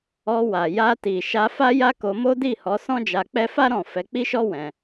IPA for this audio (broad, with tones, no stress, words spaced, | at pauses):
ɔ˧wa˨ ja˧ti˨ ʃa˧fa˦ja˦ ko˧mo˦di˦˨hɔ˨˦ sɔ̃˦d͡ʒa˧k͡pɛ˦ fa˦ ɾɔ̃˦˨ fɛ˨˦k͡pi˦ʃɔ˦ wɛ̃˧